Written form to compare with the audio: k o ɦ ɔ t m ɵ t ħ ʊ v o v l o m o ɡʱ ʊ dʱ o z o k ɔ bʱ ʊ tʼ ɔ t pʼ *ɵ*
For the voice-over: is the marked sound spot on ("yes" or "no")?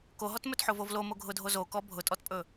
yes